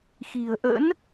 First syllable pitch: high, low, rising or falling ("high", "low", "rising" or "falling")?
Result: low